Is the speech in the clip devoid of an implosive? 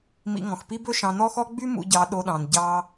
no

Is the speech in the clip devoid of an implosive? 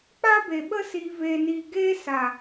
no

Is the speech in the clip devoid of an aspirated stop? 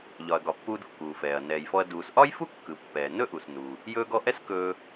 yes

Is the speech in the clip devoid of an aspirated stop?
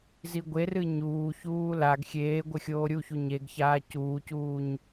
yes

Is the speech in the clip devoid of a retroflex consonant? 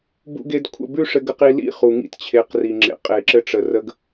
no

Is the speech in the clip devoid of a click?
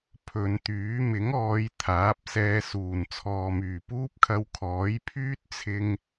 yes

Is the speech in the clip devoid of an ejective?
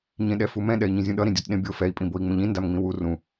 no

